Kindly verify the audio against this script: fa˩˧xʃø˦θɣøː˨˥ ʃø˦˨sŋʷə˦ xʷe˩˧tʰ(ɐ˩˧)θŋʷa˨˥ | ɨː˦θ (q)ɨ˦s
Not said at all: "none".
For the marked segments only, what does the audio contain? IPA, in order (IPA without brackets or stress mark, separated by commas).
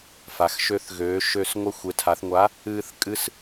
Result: a˩˧, kʼ